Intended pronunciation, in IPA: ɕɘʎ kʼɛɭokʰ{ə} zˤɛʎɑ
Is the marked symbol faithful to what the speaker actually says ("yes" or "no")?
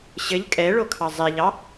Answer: no